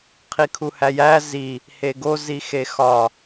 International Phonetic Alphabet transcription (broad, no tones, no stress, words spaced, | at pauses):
qʰikʰuhæjæ zi | heɡo zixexɒ